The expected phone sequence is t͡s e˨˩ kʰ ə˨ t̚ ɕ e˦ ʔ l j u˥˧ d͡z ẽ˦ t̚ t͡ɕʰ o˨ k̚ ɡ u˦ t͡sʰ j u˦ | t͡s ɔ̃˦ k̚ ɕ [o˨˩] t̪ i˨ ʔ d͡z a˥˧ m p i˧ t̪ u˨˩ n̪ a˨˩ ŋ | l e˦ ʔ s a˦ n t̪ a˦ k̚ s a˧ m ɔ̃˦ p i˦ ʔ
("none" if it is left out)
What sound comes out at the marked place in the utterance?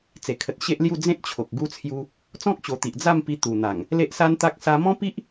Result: o˨˩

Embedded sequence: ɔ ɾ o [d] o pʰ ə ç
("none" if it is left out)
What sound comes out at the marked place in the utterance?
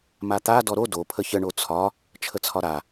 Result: d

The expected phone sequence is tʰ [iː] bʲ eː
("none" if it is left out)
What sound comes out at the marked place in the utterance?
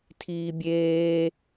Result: iː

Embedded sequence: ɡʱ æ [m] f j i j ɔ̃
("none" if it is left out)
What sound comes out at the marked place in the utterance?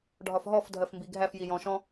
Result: none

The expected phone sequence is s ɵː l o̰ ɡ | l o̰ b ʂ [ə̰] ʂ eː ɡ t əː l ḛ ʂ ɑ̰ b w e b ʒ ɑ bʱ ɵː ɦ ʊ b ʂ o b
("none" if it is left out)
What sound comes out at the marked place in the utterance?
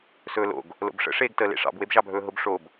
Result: ə̰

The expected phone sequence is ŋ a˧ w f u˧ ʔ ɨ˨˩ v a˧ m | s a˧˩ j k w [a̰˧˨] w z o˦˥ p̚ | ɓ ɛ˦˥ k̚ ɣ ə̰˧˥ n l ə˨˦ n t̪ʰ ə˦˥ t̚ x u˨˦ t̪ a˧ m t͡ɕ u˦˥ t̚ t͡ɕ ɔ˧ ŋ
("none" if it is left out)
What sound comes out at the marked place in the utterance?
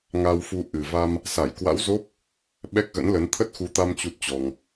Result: a̰˧˥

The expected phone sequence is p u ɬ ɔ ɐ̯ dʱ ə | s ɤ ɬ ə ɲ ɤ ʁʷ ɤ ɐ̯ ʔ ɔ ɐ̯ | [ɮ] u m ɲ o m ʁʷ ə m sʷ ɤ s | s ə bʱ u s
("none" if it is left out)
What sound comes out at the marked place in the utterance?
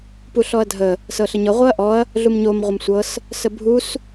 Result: ɮ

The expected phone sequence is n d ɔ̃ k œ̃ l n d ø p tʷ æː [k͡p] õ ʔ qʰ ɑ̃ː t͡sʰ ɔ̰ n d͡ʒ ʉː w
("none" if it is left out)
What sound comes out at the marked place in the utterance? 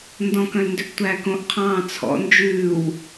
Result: k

